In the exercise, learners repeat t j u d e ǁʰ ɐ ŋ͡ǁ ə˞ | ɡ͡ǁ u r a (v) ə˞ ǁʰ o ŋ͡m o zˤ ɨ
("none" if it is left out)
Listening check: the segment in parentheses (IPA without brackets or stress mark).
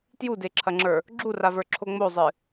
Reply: v